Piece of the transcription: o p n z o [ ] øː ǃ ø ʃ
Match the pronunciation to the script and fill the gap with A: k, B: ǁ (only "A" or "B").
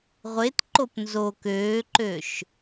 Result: A